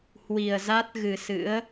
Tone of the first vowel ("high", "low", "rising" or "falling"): low